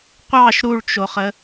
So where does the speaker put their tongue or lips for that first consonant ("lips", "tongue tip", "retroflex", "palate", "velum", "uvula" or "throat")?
uvula